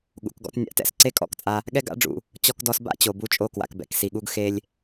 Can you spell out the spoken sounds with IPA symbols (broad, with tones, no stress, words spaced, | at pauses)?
ɠṵ˩kɡɔ̰˧t nʲa̰˧tɛ̰˥s ǀe˥kʼɔ̰˥kt͡sʼa˧ | ɠɛ˥ɡa̰˥ɖ͡ʐṵ˩ | t͡ɕɔ˧kdɔ˧sba̰˥ t͡ɕo˩ bu˧t͡ʃʼo˧ kwa̰˩kbɛ̰˩ksi˩ɠu˧ɡ xe˧lʲ